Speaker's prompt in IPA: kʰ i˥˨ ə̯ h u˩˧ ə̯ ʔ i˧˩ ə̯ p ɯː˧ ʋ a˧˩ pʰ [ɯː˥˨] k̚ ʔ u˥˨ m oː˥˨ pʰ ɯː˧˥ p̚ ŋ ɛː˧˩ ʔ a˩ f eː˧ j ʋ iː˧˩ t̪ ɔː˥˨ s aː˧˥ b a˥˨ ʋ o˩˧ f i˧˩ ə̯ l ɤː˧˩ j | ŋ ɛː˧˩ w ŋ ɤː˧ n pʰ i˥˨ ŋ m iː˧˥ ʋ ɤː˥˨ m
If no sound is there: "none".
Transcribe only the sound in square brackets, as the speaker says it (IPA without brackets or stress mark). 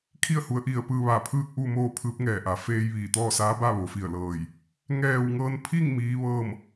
ɯː˥˨